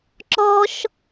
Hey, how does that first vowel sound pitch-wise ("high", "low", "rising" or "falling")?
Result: high